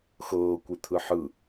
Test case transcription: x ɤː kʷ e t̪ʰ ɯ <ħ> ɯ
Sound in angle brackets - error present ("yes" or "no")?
no